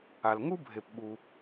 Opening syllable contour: low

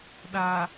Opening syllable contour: low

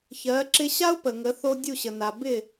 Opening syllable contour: rising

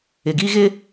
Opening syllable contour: low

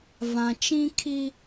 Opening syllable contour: low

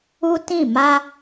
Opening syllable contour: high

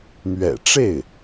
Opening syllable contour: low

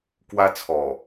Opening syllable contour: high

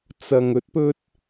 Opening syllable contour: low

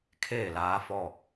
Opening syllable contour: falling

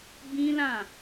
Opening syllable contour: high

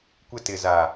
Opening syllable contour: high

